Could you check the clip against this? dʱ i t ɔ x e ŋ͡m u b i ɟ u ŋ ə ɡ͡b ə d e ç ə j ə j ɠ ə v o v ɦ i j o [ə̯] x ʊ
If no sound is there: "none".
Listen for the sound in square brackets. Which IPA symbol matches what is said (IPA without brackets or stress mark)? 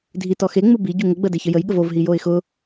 ɪ̯